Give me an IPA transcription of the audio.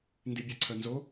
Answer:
n d i bʲ a ǀʰ œ n z o

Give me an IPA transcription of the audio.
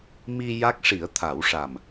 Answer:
m i˧ j a˦˥ k̚ ʂ i˨˩˦ ə̯ t̪ʰ a˨˩˦ w ʂ a˨˩ m

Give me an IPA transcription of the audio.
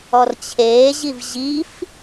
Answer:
ɔ r t͡ɕʰ eː ʑ i v ʑ i f

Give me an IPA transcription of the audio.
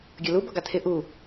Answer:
ɡʲ ʌ l u b ʌ ɡ ɑ tʰ ɪ ʔ u

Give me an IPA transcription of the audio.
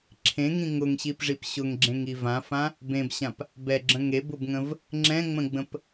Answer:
ǁʰ ẽ ŋ ĩ ŋ ʊ ŋ ɕ i p ʐ i p ɕ ʊ ŋ ɡ͡ǁ ẽ ŋ i v ã f ã | b ẽ b ɕ ã p | b ɛ ɡ͡ǁ ə̃ ŋ e b ʊ b ŋ ə̃ v | ŋ͡ǁ ɛ̃ ŋ͡m ə̃ ɡ͡b ə̃ p

